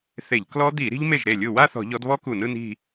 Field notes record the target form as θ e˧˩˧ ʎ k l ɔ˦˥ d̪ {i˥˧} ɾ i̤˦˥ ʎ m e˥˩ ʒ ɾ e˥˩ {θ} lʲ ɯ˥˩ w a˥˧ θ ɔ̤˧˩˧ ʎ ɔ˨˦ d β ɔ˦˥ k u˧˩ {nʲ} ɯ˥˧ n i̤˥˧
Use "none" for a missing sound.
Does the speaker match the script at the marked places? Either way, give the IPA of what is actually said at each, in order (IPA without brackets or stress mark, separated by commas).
i˧˩˧, none, n